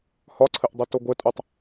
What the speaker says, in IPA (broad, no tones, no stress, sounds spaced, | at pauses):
h ɒ ǀʰ ɘ ʔ dˤ ɘ t o ɡʷ ɘ tʼ u tˤ